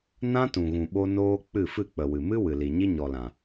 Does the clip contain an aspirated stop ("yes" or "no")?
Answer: no